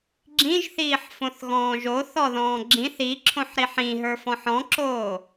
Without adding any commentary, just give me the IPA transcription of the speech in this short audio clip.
ɡ͡ǁ ĩ ʒ θ iː ħ f õ θ ɣ ɔ̃ː ʒ o θ ɔ ð ɔ̃ː ɡ͡ǁ ĩ θ i ǁʰ õ ħ ɾ i ħ ĩ ɦ ə˞ f ɔ̃ ħ ɔ̃ ǁ oː

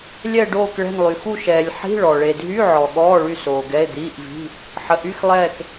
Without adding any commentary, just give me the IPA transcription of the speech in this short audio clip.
lʲ ɛ˦˨ ɖ oː˦˨ k ɭ ɛ̤˦˨ n lˠ y˨ x u˦˨ ʃ ɛː˨ lʲ ħ i̤˧˥˧ ɭ ɔ˨ ɭ e˨ dʱ y˧˥˧ ʕ ɔ˨ ɠ ɔː˧˥˧ ɭ y˦˨ s oː˨ ɡ ɛ˧˥˧ e̯ d̪ iː˧˥˧ ʔ v i̤˧˥˧ | ħ ə˨ ʔ y˧˥˧ x lˠ ɛː˦˨ k

